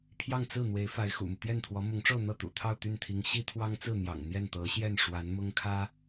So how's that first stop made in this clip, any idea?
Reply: aspirated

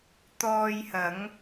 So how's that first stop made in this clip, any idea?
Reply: plain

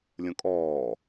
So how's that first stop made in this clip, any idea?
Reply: ejective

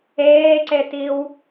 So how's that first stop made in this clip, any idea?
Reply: click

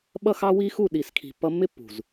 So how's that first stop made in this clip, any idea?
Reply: implosive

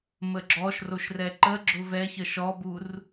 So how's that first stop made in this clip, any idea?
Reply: click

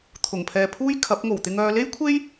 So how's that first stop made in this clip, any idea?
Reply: aspirated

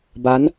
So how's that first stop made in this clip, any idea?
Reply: plain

